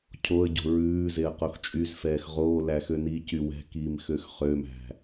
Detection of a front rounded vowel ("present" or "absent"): present